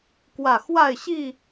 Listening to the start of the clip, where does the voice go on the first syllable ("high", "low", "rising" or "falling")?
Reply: low